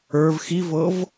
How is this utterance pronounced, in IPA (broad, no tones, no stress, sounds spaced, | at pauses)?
ə˞ v x i v ɤ v